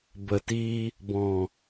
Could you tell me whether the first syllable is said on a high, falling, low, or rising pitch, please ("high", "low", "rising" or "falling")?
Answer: low